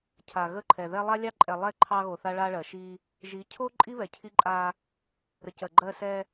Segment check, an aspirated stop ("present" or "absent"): present